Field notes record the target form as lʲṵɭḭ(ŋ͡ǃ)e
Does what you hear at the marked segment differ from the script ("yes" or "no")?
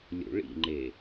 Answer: no